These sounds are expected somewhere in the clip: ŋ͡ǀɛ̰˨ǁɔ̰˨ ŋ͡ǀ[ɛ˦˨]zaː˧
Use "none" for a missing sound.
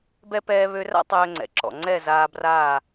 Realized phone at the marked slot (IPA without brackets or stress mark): ɛ˦˨